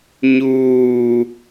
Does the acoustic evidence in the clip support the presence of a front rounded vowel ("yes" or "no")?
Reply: no